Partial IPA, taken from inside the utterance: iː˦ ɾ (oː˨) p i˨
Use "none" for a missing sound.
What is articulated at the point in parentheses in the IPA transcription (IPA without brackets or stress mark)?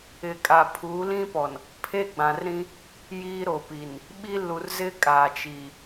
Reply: o˨